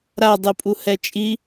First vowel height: low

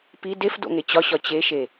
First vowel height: high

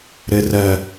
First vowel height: mid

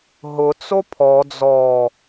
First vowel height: high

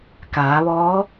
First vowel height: low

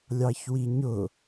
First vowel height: low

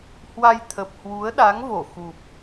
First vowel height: low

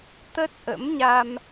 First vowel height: mid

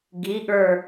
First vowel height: high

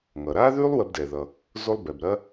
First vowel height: mid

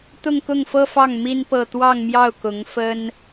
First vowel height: high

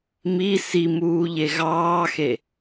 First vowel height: high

